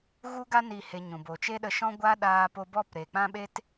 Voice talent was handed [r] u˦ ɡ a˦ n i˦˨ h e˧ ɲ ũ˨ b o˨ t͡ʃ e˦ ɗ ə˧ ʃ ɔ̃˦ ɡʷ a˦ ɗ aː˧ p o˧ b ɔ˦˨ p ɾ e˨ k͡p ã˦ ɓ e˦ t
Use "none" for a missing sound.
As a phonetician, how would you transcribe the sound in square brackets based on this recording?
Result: ɣ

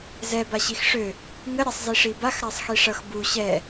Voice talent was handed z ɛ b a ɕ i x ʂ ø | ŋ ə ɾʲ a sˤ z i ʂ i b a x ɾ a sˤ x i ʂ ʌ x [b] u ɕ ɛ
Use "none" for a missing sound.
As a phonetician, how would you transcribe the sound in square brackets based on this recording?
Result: b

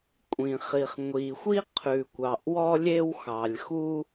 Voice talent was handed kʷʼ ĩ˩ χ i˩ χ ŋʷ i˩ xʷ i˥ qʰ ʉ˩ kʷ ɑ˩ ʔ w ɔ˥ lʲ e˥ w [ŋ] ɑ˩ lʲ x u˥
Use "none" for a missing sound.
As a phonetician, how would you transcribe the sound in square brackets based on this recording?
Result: x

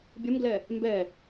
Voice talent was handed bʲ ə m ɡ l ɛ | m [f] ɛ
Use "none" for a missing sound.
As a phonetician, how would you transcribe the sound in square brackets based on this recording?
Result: b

